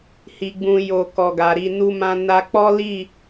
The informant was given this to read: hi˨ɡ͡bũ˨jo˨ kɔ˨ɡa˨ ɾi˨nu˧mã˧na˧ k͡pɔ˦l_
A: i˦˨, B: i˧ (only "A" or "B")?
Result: A